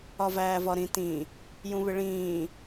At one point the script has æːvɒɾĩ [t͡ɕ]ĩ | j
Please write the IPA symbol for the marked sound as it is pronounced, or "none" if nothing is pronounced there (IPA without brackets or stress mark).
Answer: t